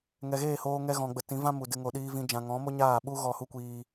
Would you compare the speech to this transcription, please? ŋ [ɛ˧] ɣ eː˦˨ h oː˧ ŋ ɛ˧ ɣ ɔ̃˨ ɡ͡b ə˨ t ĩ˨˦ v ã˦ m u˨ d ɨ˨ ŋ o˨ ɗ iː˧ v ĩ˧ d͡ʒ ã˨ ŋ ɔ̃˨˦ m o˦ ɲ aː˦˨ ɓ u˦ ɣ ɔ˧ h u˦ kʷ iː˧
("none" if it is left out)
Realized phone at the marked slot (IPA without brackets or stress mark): ɛ˨